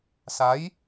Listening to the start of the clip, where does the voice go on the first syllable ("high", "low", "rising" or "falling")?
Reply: rising